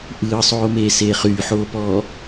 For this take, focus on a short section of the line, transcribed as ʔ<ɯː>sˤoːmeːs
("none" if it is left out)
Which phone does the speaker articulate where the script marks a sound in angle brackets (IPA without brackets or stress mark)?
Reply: ɯː